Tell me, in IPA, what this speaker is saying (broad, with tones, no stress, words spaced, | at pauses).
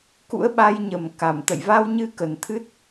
kṵ˧˥ə̯ɓa˧jɲə˨˩m ka˧˩m t̪ə̰˧˨jva˧wɲɨ˧ kə˨˩nt̪ʰɨ˦˥t̚